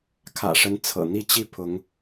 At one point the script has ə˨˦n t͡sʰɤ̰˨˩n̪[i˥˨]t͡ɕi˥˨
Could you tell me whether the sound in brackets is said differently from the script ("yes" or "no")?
no